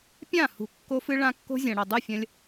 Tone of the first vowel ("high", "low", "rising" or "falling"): falling